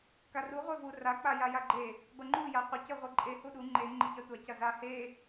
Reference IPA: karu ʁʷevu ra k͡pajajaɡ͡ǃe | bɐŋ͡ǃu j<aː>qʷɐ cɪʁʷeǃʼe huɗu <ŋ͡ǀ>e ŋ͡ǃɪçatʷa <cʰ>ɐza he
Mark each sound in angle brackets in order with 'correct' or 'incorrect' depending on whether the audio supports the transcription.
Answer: incorrect, incorrect, incorrect

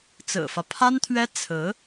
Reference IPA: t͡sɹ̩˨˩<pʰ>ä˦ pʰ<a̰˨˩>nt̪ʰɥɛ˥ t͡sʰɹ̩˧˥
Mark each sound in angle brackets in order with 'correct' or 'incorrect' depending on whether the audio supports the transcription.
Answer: incorrect, incorrect

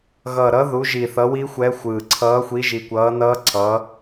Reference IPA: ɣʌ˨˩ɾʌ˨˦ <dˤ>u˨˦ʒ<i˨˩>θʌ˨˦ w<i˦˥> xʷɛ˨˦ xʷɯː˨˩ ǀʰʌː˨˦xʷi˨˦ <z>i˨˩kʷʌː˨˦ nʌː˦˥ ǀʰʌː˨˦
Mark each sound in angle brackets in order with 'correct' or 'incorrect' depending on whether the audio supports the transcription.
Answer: incorrect, correct, correct, incorrect

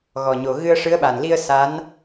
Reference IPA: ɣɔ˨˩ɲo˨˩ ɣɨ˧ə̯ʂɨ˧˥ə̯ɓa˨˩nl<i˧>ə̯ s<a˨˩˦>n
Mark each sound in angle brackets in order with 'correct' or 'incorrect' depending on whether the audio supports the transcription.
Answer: correct, incorrect

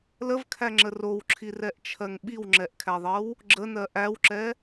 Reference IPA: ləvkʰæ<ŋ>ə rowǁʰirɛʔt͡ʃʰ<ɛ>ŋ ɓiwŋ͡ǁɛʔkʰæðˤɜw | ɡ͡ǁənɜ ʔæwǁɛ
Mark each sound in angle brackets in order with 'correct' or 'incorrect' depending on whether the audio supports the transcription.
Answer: incorrect, incorrect

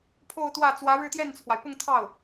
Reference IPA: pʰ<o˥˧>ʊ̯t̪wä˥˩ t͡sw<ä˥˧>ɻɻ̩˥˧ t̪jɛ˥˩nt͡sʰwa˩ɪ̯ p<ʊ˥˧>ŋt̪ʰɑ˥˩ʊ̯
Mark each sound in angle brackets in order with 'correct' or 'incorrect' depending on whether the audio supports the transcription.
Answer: correct, incorrect, correct

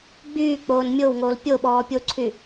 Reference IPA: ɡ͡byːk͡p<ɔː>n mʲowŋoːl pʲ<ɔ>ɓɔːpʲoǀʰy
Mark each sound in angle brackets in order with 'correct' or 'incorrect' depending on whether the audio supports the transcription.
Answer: incorrect, incorrect

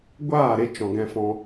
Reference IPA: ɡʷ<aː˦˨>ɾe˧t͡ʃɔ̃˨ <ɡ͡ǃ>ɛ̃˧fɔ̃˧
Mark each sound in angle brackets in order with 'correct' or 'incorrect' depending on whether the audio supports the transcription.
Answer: correct, incorrect

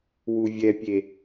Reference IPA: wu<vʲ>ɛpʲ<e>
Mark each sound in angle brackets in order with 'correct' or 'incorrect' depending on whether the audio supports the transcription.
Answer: correct, correct

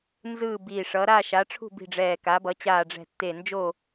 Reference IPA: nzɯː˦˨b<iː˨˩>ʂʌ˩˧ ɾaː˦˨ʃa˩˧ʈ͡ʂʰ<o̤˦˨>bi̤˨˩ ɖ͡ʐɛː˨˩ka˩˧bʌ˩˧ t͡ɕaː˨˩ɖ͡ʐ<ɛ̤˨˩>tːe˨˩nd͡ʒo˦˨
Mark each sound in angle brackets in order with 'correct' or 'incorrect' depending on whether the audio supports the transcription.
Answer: correct, incorrect, correct

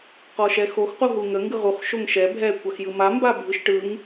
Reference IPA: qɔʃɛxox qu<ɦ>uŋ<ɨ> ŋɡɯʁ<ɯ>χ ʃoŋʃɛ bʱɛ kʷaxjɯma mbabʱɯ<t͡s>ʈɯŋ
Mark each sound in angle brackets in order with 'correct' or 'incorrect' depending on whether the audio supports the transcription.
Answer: correct, incorrect, incorrect, incorrect

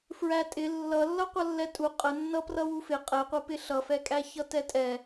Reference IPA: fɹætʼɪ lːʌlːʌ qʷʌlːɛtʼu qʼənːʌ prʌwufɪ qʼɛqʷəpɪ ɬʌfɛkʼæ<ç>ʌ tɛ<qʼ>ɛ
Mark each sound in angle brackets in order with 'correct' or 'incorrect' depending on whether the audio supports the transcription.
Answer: correct, incorrect

